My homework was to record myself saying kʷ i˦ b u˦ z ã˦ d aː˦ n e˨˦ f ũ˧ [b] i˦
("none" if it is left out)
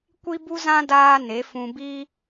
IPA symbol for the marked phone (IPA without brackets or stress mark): b